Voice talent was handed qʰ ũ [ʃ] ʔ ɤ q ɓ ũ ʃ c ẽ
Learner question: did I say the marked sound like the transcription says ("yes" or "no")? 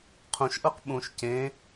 yes